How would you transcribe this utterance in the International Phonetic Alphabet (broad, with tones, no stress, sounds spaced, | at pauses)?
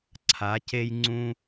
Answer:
ǀʰ a˨˦ c e˦ j ŋ͡ǀ ũ˦